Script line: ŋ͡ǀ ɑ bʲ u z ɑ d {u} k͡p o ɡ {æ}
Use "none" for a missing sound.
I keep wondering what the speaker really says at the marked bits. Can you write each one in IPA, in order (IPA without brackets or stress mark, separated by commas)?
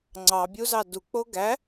u, æ